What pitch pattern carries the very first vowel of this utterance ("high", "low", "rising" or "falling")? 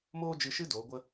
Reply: high